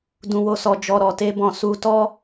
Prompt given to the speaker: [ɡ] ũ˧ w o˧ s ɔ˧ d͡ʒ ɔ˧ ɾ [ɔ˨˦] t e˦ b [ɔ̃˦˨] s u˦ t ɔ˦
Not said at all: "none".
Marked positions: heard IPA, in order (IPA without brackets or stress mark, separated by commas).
d, ɔ˧, ɔ̃˧